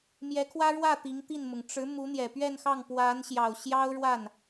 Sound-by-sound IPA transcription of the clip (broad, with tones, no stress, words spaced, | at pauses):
mjɛ˧˥kʰwä˥ɻwä˥˩ t̪i˧˥ŋt̪i˥˩nmʊ˩ŋ ʈ͡ʂɻ̩˧˥ mu˧˥n̪jɛ˨˩pɥɛ˥˧nxɑ˥˩ŋ pwa˧˥nɕjɑ˨˩ʊ̯ɕjɑ˥ʊ̯ɻwa˥˩n